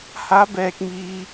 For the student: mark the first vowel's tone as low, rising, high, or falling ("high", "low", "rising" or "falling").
rising